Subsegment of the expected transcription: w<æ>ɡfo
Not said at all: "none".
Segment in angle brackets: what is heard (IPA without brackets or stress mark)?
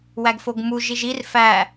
æ